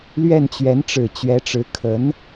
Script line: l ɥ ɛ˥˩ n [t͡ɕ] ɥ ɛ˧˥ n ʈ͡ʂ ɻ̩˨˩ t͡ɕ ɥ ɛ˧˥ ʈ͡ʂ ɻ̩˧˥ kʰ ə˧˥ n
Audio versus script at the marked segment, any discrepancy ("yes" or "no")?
no